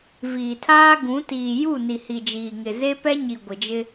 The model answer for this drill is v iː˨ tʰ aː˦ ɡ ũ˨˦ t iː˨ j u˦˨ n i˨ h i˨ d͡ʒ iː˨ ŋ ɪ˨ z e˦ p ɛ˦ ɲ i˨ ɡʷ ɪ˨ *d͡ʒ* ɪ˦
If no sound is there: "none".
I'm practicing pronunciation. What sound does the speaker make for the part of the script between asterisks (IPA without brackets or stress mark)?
d͡ʒ